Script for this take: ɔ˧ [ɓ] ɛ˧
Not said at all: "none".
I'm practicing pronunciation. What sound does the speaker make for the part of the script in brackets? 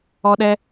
ɗ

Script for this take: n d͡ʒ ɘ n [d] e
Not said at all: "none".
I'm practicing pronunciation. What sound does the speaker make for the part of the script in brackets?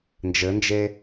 d͡ʒ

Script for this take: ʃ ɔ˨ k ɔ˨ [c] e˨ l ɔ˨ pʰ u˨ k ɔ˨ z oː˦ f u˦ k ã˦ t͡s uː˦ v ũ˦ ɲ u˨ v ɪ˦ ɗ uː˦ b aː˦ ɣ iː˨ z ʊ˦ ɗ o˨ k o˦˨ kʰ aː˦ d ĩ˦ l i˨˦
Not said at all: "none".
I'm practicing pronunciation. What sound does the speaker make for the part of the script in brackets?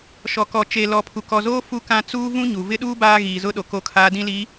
t͡ʃ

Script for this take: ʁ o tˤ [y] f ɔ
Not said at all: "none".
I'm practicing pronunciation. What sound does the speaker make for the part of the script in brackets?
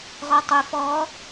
y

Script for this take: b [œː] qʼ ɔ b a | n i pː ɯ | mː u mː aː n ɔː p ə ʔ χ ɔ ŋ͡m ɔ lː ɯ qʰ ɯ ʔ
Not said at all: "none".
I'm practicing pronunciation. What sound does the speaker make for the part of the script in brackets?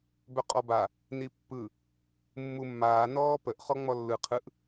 œ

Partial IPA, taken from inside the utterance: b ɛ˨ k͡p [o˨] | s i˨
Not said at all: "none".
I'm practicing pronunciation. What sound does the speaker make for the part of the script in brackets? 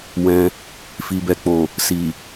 o˨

